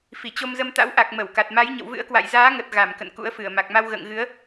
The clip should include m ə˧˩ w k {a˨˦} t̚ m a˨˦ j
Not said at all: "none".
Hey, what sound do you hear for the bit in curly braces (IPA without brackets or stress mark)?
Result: a˨˩